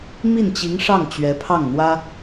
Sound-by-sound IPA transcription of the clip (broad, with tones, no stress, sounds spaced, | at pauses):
m i˥˩ n t͡ɕ i˧˥ ŋ ʂ ɑ˥˩ ŋ t͡ɕ ɥ ɛ˧˥ pʰ ɑ˥˩ ŋ n̪ w ä˥